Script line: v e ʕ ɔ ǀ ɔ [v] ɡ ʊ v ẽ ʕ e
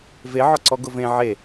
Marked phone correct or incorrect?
incorrect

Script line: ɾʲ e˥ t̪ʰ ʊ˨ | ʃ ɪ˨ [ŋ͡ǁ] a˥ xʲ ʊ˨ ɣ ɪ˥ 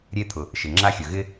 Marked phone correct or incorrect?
correct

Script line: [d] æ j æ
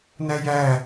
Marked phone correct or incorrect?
incorrect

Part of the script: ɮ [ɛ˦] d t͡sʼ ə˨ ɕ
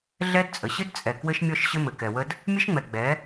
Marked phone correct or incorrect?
correct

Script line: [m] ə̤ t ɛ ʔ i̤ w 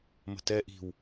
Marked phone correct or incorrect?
correct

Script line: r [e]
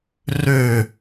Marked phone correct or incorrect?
incorrect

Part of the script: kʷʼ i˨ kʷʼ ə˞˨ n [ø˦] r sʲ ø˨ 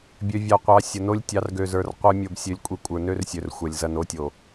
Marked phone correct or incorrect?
correct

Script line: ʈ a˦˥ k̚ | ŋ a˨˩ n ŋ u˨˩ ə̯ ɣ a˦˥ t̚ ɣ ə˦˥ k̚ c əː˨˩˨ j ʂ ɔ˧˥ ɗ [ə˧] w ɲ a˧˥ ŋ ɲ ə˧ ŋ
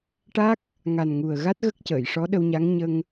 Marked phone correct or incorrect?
correct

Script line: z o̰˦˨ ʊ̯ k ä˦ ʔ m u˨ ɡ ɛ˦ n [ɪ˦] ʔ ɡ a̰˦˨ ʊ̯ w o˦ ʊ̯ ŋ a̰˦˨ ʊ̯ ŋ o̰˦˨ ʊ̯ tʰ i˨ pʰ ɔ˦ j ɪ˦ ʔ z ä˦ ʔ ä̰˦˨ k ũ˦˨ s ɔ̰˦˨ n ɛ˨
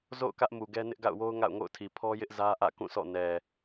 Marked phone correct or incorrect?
correct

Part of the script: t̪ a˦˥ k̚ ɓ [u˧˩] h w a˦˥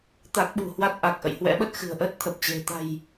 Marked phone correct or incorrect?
incorrect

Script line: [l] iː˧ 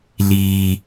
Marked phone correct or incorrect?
correct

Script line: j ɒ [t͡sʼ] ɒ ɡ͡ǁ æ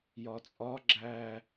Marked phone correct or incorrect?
correct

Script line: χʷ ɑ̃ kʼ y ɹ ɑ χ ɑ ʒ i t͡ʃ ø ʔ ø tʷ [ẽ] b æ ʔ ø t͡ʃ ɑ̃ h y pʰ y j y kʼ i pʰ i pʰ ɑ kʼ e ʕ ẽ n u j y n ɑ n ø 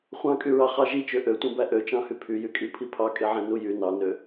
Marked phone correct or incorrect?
correct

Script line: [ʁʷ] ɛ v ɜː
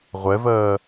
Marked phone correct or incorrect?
correct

